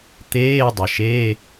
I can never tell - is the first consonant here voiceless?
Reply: yes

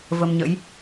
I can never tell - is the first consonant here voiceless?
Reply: no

